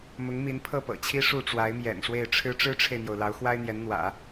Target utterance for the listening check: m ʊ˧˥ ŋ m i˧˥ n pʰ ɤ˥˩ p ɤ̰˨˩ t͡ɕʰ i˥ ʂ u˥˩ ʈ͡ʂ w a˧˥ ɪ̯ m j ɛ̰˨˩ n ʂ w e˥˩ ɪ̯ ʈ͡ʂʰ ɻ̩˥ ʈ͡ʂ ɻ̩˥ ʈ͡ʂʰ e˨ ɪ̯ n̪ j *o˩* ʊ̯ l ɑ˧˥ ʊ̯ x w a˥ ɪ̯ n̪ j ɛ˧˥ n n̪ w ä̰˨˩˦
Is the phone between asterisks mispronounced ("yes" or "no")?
no